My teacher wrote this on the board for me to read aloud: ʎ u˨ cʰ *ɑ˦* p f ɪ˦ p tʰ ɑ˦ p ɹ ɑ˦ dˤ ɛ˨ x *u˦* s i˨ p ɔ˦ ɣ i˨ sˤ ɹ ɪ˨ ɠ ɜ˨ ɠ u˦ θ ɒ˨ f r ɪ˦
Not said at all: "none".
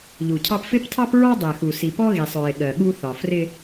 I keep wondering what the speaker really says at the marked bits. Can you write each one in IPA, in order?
ɑ˦, u˨

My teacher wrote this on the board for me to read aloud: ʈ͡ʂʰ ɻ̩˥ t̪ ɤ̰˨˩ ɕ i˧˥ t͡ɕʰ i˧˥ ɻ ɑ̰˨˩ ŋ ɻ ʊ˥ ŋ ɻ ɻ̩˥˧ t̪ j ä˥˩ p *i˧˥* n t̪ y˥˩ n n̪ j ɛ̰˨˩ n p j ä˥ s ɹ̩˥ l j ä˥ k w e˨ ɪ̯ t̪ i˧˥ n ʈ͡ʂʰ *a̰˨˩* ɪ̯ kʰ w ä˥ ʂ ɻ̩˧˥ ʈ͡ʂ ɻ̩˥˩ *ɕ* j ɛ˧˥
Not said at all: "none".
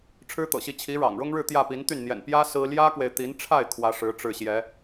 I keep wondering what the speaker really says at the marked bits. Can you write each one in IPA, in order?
i˧˥, a˥˩, ɕ

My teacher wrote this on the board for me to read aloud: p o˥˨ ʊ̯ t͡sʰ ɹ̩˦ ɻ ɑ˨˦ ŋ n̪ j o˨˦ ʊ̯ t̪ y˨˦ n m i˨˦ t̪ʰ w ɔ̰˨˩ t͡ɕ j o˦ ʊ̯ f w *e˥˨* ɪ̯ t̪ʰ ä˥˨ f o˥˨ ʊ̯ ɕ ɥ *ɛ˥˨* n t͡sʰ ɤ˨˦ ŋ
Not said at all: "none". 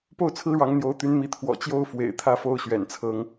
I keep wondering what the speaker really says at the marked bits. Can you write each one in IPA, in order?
ḛ˨˩, ɛ̰˨˩

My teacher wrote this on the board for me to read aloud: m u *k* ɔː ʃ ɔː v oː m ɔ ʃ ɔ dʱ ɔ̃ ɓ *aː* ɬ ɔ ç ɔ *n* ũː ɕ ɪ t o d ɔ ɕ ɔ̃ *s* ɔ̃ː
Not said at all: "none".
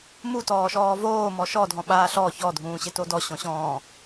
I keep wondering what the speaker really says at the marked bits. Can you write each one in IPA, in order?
t, aː, dʱ, ɕ

